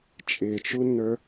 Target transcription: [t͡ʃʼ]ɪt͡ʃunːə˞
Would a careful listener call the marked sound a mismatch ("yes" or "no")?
no